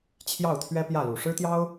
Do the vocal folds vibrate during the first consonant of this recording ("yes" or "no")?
no